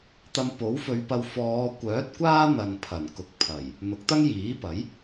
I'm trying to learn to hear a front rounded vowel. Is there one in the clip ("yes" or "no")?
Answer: yes